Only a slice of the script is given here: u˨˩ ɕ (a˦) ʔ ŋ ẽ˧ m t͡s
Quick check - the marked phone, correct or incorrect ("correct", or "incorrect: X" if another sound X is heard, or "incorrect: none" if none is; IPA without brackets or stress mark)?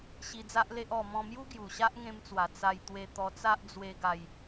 correct